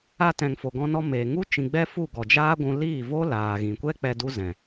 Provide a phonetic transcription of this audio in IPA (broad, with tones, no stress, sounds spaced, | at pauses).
a˧ t ɛ̃˨ ŋ f o˨ ɡ ɔ̃˧ n ɔ˧ m eː˨ ŋ u˦ t͡ʃ ĩ˨ ɡ͡b ɛ˦ f u˦˨ ɡ ɔ˨ d͡ʒ aː˦ ɡʷ ũ˧ l iː˦˨ v o˦ l aː˨ ɣ ĩ˨ kʷ ɛ˦ k͡p ɛ˧ d u˦ z ɛ̃˨